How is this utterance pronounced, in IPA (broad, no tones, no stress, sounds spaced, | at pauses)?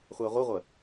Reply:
χʷ æ ʁʷ ə ʁʷ ə